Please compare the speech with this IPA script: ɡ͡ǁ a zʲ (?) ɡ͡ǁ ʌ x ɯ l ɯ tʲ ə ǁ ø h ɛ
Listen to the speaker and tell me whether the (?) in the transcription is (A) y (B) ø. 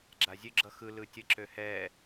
B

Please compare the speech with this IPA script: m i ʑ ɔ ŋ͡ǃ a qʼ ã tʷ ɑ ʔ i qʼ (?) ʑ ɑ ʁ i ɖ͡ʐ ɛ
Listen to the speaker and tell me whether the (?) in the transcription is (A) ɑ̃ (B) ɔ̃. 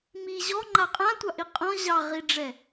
B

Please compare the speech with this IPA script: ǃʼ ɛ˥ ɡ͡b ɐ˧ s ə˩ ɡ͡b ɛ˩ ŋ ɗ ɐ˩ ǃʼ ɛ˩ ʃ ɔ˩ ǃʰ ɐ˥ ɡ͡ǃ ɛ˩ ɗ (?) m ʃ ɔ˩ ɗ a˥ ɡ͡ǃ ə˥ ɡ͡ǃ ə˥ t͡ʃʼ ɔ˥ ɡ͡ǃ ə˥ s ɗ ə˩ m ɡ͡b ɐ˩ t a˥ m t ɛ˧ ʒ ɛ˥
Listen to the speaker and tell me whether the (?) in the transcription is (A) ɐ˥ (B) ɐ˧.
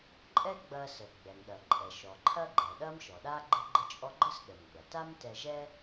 A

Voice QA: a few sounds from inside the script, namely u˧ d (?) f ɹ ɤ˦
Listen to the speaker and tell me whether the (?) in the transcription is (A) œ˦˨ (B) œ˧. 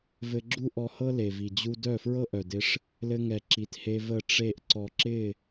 A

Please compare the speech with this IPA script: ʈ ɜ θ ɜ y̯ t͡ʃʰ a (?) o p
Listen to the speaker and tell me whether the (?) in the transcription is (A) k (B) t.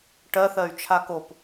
A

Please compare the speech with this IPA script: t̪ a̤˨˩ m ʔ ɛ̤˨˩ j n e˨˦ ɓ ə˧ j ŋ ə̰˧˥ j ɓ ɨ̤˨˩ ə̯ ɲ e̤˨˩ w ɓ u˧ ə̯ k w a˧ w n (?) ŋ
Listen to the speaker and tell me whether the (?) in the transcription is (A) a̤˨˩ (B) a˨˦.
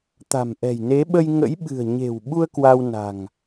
A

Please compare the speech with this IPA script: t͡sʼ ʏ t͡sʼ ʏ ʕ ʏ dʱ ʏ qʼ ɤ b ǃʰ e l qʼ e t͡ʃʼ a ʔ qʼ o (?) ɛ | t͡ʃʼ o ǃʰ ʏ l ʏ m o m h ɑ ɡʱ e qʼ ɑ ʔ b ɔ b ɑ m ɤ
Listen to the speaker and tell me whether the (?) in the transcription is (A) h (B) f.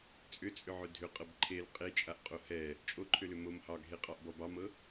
A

